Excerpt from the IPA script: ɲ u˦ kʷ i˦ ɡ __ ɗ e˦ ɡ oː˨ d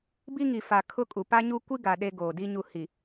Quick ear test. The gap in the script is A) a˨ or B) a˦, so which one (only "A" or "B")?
A